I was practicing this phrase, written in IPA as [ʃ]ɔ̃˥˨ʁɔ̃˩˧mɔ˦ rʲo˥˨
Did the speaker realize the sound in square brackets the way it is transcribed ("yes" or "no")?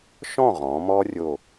yes